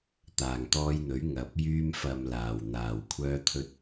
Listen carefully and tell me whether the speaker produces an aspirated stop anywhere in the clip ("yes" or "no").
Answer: yes